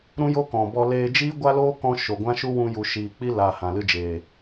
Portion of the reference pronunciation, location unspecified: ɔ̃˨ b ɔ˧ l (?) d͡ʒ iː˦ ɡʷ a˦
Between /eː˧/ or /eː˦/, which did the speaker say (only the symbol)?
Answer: eː˧